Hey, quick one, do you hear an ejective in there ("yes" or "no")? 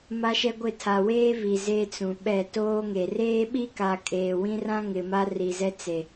yes